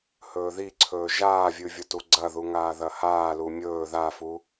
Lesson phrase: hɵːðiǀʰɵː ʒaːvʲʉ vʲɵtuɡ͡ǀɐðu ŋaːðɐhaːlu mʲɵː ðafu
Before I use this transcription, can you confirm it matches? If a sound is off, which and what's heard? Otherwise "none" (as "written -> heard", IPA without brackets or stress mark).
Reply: none